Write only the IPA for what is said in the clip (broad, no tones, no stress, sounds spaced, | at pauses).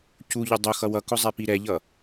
c u ʎ ʊ dˤ ʊ x ʌ w ʌ k ʊ zˤ ɛ p i ɾ ɛ ʎ ʌ